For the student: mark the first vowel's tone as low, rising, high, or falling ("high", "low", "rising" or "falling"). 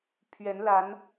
rising